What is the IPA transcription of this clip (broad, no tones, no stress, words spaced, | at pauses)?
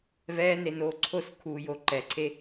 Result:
vɛːnenoː ǀʰoskʰuːjo ǃɛǀʰe